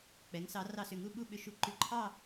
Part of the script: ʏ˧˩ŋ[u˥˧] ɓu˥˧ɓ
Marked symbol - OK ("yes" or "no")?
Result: yes